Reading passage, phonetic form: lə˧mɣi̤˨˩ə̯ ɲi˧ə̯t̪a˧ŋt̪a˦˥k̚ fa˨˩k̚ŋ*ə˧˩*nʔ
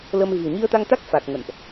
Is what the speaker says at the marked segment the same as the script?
no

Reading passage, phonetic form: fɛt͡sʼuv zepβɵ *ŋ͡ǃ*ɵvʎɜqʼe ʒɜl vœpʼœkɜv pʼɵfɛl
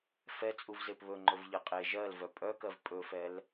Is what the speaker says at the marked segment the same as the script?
yes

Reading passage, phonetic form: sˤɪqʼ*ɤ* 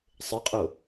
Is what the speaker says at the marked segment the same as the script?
no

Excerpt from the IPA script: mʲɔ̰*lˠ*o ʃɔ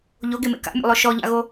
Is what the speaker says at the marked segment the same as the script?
yes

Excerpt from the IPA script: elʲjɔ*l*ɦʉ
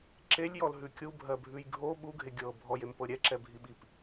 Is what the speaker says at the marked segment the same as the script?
yes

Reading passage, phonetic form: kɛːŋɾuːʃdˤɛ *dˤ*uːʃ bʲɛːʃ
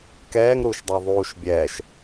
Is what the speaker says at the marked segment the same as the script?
no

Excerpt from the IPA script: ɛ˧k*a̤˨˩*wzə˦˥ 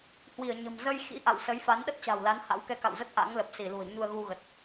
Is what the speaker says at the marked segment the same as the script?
no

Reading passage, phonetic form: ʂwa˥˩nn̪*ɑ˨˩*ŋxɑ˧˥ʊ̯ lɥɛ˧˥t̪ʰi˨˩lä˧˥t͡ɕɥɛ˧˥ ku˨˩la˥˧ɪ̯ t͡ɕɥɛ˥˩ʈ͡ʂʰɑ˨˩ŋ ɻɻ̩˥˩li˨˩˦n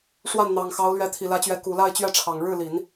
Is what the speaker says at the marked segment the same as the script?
yes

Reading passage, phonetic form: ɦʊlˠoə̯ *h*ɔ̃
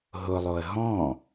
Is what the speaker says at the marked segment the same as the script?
no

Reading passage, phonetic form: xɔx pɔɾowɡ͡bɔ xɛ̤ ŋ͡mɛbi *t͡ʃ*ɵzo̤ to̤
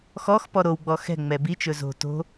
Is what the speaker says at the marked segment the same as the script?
yes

